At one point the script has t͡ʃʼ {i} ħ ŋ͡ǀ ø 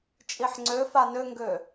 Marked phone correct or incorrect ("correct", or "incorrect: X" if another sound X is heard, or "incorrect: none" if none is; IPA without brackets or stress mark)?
correct